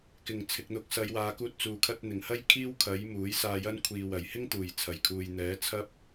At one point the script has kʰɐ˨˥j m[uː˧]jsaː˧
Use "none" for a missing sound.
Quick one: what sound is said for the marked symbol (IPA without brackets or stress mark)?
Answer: uː˨˥